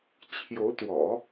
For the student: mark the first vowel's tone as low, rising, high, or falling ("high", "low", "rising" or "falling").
rising